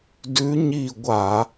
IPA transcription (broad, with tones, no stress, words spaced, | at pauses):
dʉ˧˥ɲi˦˨ɡʷa˧˩˧